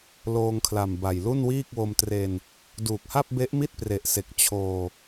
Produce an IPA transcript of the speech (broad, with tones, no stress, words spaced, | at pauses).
loː˧ŋkʰla˨˩mba˨˩j lu˥˩nwiː˥˩k̚wo˧mtre˧n | duː˨˩k̚ha˥˩p̚be˦˥ʔ mi˥˩t̚pre˨˩ʔse˨˩k̚ t͡ɕʰoː˧